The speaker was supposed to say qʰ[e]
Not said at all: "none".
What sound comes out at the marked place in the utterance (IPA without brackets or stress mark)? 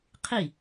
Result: i